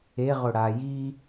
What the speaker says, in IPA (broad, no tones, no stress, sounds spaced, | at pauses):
e ʁ ʊ ɽ a j i